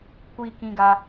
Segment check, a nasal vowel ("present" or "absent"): present